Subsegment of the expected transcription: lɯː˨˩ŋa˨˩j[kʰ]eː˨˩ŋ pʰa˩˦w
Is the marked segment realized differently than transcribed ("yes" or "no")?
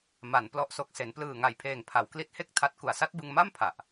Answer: yes